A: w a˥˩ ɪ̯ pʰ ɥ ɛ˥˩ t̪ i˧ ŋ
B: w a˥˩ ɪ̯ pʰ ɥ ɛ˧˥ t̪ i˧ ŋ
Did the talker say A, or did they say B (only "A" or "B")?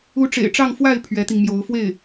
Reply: B